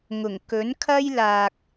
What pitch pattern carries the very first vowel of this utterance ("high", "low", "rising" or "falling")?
low